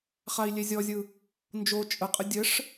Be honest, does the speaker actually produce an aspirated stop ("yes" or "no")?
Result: no